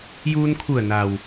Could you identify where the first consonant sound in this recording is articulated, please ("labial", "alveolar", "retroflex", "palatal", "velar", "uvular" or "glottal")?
palatal